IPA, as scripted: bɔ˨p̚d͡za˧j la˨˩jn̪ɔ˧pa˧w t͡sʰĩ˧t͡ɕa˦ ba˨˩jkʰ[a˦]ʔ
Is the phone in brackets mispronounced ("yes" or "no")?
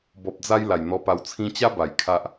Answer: no